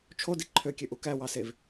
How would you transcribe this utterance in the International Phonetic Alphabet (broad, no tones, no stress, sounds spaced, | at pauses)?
t͡ʃʰ o d i ǃʰ ø kʲ ø ʔ u k æ w ɑ s e v